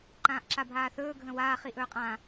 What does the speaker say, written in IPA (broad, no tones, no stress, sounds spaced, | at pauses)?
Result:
ǃ ãː ʔ ǁ a bʱ aː θ ɵː ɡʱ ə̃ w aː χ i ʔ ɵː qʼ ã